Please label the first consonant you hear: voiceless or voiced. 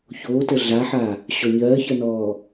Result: voiceless